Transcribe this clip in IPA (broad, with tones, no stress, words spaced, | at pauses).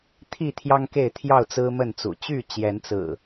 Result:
t̪ʰi˥˨t̪ʰjɑ˦ŋke˥˨ɪ̯ t̪ʰjɑ˥˨ʊ̯t͡sɹ̩˦mə˥˨nt͡sṵ˨˩ t͡ɕy˥˨t͡ɕjɛ˨˦nt͡sɹ̩˨˩